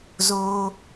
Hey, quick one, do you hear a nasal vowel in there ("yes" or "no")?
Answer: no